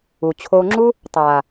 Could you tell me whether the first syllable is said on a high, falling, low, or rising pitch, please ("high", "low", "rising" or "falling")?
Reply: low